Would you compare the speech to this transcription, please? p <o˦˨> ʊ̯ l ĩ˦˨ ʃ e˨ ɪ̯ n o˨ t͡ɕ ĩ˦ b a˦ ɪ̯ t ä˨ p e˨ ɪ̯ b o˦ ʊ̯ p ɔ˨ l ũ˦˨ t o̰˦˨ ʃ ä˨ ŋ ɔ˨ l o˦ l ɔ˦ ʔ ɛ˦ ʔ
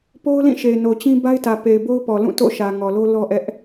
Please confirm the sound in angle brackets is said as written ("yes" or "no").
no